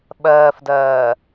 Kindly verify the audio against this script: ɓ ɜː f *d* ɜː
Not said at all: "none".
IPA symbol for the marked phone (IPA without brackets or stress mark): d